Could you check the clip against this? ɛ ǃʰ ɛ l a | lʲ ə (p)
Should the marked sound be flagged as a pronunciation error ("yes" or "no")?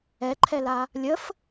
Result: yes